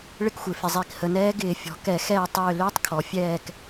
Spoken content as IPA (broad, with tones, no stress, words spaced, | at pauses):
ɭɪ˦˨kxʷɪː˩ fɪ˩ zˤi˧˩˧khə˩˧nɛː˦˥ ɡɪː˧˩˧fʲɔ̤˩˧kɛ˧˩˧ xɛː˦˨tˤʏː˦˨ lʏː˦˥tˤkʰɔ˩˧ fʲɛː˦˨k